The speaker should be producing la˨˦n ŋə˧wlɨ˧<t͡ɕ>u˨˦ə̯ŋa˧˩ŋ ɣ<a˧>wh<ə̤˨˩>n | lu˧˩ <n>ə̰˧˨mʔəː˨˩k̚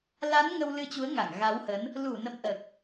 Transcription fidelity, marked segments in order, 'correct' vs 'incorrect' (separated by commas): correct, incorrect, incorrect, correct